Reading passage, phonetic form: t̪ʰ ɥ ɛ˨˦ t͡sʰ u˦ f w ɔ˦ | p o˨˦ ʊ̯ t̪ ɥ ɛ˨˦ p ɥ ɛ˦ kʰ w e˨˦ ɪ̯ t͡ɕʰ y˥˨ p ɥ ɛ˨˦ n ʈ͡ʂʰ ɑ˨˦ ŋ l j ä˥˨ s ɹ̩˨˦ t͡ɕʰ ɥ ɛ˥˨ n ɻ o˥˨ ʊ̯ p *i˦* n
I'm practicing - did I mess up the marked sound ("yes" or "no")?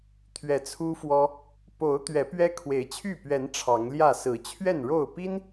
no